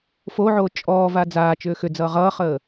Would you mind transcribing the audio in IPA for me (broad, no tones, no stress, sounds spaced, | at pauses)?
f o ʕ oː t͡ʃʼ ɔː v a d͡z aː t͡ʃ ʏː x ʏ d͡z ʌː ʁ ʌː χ əː